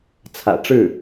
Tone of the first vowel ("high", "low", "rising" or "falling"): low